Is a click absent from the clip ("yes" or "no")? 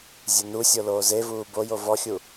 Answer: yes